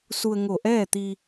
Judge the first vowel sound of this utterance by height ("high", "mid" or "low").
high